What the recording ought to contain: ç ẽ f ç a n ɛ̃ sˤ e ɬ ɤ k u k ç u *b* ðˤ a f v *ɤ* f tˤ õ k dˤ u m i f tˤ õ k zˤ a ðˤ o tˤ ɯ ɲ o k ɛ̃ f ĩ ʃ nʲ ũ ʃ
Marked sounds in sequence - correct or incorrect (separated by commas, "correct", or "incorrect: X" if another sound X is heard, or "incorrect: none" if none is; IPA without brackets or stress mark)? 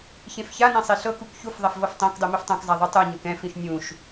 incorrect: f, correct